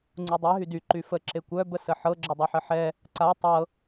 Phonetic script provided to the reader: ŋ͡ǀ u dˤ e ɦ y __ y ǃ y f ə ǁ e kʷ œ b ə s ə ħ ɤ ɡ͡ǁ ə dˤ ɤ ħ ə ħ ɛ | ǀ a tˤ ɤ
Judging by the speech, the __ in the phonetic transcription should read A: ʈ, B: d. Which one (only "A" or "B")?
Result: B